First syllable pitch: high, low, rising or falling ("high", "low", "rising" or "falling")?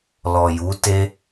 low